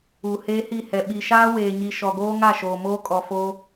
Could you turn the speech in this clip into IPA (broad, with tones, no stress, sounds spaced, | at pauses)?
u˨ h eː˦ h i˦˨ h ɛ˨ ɓ i˨ ʃ aː˦ w eː˨ ɲ i˨ ʃ ɔ˨ ɡ oː˦ ŋ a˦˨ ʃ oː˨ m oː˦ kʼ ɔ˨ f oː˦